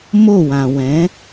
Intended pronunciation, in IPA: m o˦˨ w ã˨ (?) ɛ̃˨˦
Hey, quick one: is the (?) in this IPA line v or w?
w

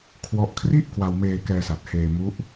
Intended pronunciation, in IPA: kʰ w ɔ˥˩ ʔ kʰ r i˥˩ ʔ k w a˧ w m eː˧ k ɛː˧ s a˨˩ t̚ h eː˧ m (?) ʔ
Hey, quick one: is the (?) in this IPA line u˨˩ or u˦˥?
u˦˥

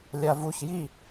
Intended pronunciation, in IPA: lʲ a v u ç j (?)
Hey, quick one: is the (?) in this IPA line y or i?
i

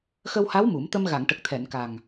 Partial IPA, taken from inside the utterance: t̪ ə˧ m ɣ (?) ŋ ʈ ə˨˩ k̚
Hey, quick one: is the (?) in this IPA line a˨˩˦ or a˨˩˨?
a˨˩˨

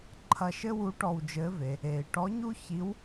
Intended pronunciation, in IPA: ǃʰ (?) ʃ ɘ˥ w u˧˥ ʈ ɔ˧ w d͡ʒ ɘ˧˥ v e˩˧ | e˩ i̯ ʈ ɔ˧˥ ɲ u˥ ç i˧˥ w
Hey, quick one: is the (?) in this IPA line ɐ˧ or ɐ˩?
ɐ˧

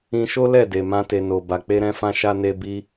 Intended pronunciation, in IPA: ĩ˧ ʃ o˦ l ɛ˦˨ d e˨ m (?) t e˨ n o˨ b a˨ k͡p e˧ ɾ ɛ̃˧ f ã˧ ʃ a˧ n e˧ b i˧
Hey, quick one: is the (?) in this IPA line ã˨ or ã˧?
ã˧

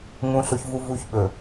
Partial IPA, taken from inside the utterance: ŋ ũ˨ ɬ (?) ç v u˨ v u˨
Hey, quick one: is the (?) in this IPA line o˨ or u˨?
o˨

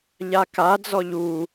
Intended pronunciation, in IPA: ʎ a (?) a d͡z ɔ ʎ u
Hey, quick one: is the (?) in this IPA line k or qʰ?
k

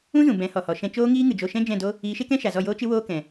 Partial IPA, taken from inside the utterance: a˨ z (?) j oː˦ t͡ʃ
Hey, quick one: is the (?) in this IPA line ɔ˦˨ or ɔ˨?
ɔ˦˨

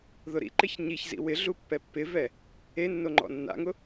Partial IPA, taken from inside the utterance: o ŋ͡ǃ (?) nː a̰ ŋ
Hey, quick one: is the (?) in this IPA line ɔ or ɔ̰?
ɔ̰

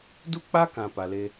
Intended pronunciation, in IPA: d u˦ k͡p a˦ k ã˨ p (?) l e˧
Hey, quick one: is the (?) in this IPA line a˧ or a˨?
a˨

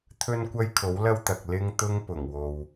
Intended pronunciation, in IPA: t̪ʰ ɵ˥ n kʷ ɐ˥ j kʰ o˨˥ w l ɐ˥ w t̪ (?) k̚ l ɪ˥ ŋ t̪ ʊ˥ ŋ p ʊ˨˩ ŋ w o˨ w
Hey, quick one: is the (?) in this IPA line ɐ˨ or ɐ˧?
ɐ˨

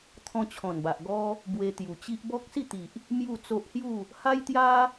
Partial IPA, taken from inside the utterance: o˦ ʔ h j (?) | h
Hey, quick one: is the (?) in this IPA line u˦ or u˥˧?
u˥˧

